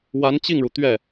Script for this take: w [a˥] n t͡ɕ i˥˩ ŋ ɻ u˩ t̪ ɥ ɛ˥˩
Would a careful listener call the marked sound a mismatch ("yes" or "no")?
yes